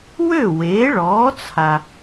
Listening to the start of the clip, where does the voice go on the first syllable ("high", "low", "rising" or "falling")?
falling